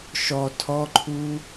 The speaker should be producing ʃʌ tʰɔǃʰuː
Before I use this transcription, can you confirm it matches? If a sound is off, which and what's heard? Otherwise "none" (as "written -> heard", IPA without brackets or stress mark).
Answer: ʌ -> ɔ